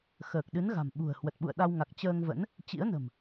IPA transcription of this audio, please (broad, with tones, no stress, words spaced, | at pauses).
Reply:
xəː˨˩k̚ɗɨ˨˦n ɣa̤˨˩mɓṳ˨˩ə̯ hwə˨˩t̚ɓṵ˧˨ə̯ɗa˧wŋa˨˩k̚ t͡ɕəː˧ŋvə̰˧˥n | t͡ɕḭ˧˥ə̯nə̤˨˩m